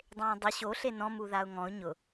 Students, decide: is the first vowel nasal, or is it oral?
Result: nasal